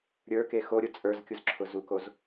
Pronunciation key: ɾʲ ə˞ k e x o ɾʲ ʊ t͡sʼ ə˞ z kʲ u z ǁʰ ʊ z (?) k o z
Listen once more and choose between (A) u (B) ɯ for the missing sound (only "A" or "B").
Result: A